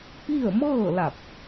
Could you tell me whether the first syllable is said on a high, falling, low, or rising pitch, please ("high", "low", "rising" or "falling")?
falling